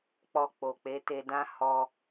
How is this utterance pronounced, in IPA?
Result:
k͡p ɔ˧ k͡p o˨ k͡p e˨˦ t e˧ d ã˦ h ɔ˧

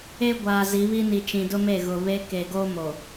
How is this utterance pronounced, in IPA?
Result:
e˦ ɡʷ aː˨ z i˨˦ β i˦ n i˨ t͡ʃ ĩ˨ d ʊ˦ m e˦˨ ɣ ʊ˨ β e˦ k e˨ ɡ o˦ m o˨

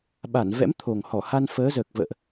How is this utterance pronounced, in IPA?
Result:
ɓ a˧˩ n v ɛ̰˧˥ m t̪ʰ o˨˩ ŋ h ɔ˧˩ h a˧ n f əː˨˦ z əː˨˩ k̚ v ə̰ː˧˨ ʔ

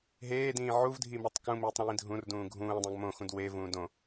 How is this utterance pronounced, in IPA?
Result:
ɦ eː d ĩː ʕ u v dʱ i m ɛ tˤ k ũ m iː tˤ ɾ ĩː dʱ ũ r d ũː ɡʱ ũː dˤ õ ɡ m õ x ũ d w e v ũː d õ

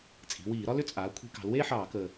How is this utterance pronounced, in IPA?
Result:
t͡sʼ i̤˩˧ w iː˧˩˧ ɾ ɒ˥ l ʏ˥˩ t͡sʼ aː˩˧ kʷʰ i̤˧˩˧ k ɑ̤˩˧ l w eː˥ ħ ɑː˧˩˧ k əː˨˩

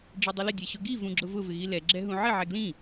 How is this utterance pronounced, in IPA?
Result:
ɖ͡ʐ i dˤ u l ɪ dʲ ɛ ɕ ʊ ɡ i v ũ ɡ͡ǁ ʊ v ʊ v ɪ ɣ i l ɛ ɡ͡ǁ ɛ ɦ ũ ʕ ɪ ʕ ɛ ɡ l ĩ

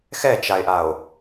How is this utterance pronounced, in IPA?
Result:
x ɛ t͡ʃ a e̯ ʔ a o̯

